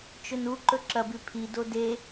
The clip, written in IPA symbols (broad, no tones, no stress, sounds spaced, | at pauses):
t͡ʃ ɵ n u ǃ ɵ ǁ ɐ b ʉ pʰ i d o d e